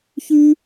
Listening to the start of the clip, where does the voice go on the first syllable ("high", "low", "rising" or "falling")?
high